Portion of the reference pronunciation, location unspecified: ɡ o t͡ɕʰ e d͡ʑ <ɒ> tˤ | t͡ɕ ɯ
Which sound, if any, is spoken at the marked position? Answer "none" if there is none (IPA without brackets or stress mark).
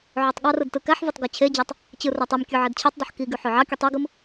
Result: ɑ